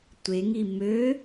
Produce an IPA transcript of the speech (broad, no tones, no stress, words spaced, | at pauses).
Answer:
tʷeŋi mø